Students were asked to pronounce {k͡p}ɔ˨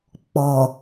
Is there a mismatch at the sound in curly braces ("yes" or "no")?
no